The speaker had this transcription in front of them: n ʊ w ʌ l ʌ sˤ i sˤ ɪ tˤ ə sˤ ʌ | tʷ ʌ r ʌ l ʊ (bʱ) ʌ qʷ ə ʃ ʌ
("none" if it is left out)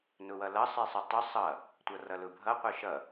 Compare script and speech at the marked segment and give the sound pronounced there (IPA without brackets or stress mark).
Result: bʱ